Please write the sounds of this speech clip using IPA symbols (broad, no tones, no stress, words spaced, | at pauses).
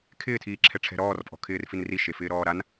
kʰɪːtʰiːǁʰɛ ʈ͡ʂʰɛ̤ɾɔːrpʼɔ̤ kʰɪːrfinri ʃefɪːɾɔːɾan